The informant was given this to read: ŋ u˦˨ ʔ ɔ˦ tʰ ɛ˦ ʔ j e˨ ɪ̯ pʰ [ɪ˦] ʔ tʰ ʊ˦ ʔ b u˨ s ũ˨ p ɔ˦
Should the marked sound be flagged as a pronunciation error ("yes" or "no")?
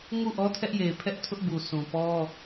yes